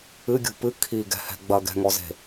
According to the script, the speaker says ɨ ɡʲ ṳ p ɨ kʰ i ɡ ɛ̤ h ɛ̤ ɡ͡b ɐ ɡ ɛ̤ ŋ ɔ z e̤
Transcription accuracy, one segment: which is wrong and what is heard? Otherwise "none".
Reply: none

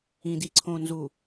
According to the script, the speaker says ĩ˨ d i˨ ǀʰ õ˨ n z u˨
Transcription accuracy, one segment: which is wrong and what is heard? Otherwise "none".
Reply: none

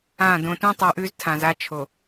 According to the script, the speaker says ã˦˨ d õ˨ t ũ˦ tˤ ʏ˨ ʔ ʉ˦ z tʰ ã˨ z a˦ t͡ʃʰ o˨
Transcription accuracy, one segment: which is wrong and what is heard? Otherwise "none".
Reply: ʏ˨ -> u˨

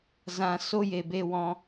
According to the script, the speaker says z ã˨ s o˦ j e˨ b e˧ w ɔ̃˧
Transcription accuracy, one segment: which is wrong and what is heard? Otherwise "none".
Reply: none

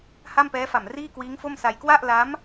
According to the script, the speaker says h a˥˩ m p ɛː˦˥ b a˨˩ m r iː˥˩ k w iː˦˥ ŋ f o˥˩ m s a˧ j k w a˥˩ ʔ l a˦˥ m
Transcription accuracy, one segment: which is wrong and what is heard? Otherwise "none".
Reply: b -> f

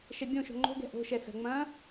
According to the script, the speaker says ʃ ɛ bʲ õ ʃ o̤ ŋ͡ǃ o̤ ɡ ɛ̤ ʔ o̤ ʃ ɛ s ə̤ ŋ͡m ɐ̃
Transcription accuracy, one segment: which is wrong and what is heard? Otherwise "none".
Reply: none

